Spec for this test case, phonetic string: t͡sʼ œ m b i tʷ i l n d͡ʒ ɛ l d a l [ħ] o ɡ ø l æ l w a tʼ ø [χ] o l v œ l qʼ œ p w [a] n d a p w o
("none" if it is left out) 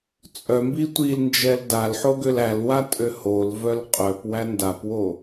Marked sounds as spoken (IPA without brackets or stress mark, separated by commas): ħ, h, æ